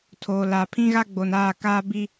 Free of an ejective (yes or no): yes